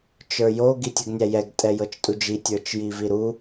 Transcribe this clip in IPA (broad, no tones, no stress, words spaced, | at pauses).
t͡ʃə˞jo ɡitʲɨɡnʲæjɛɡ tʼɛjɤt͡ʃtʼud͡ʒi tʲə˞t͡ʃjiviɾu